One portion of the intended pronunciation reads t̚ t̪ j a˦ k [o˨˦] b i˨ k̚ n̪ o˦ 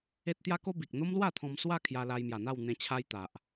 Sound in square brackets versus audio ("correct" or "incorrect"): incorrect